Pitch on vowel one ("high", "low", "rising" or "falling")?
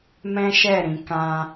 high